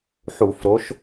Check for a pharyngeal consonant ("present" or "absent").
present